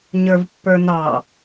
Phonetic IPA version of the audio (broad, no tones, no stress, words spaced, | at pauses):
ɲə˞vpːə˞nɑ